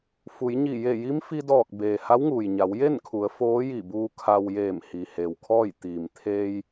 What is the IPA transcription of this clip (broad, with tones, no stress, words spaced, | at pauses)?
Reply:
fu˩˧jɲi˧˩ je˧˩ji˧˥mfi˧dɔː˧˩k̚ beː˩ ha˧˥wŋuː˩jɲa˩˧w je˥˨nkʰu˩˧ə̯ foː˧˥ji˧˩buː˧ kʰa˧w jeː˧˩mhi˩he˩w kʰɔː˥˨j t̪iː˩m t̪ʰeː˧j